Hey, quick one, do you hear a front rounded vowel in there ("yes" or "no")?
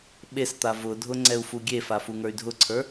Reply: yes